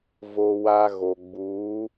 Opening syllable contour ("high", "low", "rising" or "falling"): high